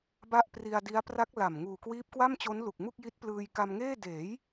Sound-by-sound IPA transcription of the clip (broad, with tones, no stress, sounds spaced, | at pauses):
b a˥˩ ʔ p r i˧ a̯ d i˦˥ a̯ p r a˦˥ k̚ l a˨˩ m ŋ uː˨˩ k w iː˦˥ p̚ k w a˥˩ m t͡ɕ o˦˥ n l u˨˩ k̚ m u˥˩ k̚ j i˦˥ t̚ p l ɯː˧ j k a˧ m ŋ eː˥˩ d eː˩˦ j